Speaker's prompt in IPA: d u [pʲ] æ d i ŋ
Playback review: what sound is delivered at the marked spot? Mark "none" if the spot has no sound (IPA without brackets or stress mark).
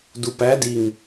p